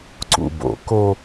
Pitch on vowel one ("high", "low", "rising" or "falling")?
low